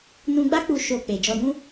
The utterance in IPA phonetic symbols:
n ũ˧ ɡ͡b a˦ k͡p u˧ ʃ o˧ k͡p e˨ d͡ʒ ɔ˧ d ũ˦

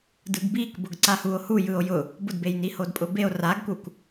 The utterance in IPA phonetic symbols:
d ɯ ɡ b i k b ʊ ɡ ǀ a h u o̯ h u j ɯ o̯ j ʊ | b ʊ d b e j n i h o d pʼ ʊ b e o̯ r a ɡ k u k

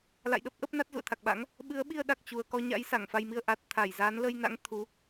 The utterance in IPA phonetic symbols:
l a̰˧˨ j ɗ ə˦˥ p̚ ʔ ə˦˥ p̚ n a˦˥ t̚ z ṵ˧˨ ə̯ t̪ʰ a˨˩ k̚ ɓ a̰˧˥ ŋ | ɓ ɨ˨˦ ə̯ ɓ i˧ ə̯ ɗ a˨˩ k̚ t͡ɕ u˨˩ ə̯ k ɔ˧ ɲ a̰˧˥ j s a˧˩ ŋ f a˧ j m i˧ ə̯ ʔ a˨˩ t̚ t̪ʰ a˧˩ j z aː˨˦ n l ə˧ j n a̰˧˥ ŋ t̪ʰ u˨˦

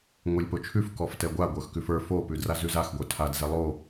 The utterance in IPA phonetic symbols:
ŋʷ e lʲ p o t͡ʃʰ ʉ f k ɔ f t ɛ ɡʷ a ɡʷ ə˞ x k ʉ f ə˞ f o p ʉ d r a z ʉ z a x ɡʷ ə˞ tʰ a d z ɛ lˠ o

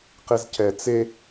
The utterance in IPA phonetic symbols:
q e z c ɛ t͡s e

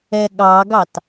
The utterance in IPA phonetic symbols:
ɛ ɠ ɑ ɡ ɑ t

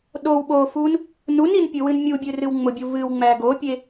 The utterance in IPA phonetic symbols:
ɗ o w ɓ o f u n | n u n i n pʲ ɨ w ɨ n mʲ u bʲ ɨ r ɨ w ŋ͡m ʊ bʲ u v ɨ w ŋ͡m æ ɡ o pʲ e

